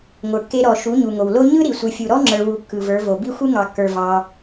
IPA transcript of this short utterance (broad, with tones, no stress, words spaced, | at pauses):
ŋʷə˞˨kːe˧ɾɔ˨ ʃu˨˦ɲu˨ŋo˨wlo˦ ɲɯ˦ ɾi˨ sʷɯ˨fʲu˨ɾɔ˦ ŋ͡ǁə˞˧wu˧kːɯ˨və˞˨˦ vo˨bi˦xʷɯ˦ ŋɑ˨kːə˞˨ vɑ˧